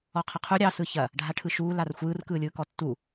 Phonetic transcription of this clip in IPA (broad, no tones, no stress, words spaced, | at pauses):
ɔqʰɐqʰu ɾʲɑ sɯçɐ | ɖʱaʈʰɯʃuː larxʷɯːr kɯːlʲɯːkɔtːu